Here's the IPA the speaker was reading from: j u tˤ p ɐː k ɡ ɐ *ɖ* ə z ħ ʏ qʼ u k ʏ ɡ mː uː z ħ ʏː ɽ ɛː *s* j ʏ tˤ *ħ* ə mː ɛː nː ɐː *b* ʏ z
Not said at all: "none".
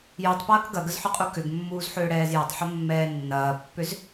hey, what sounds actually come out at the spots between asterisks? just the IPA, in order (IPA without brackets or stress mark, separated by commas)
ɡ, z, ħ, pː